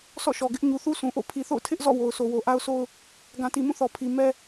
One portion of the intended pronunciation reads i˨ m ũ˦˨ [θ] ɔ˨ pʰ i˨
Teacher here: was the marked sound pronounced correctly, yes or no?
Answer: yes